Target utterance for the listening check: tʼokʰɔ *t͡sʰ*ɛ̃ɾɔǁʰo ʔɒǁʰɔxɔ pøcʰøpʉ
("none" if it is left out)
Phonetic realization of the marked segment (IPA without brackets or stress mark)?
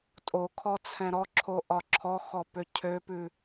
t͡sʰ